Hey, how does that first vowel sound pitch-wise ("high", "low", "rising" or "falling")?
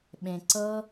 low